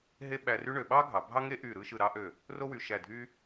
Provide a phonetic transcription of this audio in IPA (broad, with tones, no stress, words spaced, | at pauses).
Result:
ɦe˥ɓæ˧ry˥ɳø˩˧ ɓɑ˥ɡʱɑ˩˧ bʱɑ˥ŋe˥ʔy˧˩ ɾɯ˥˧ ʃɯ˧˩ɾɑ˥ʔø˧˩ | ro˥wy˩˧ʃæ˧˩dʱy˥